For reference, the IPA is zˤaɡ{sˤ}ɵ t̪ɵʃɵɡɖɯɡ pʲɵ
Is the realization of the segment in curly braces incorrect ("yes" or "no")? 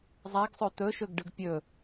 no